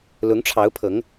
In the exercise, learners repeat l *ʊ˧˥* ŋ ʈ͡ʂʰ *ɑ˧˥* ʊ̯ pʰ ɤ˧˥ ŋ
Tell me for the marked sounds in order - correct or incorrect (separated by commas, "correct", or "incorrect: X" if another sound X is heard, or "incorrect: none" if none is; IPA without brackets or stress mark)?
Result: correct, correct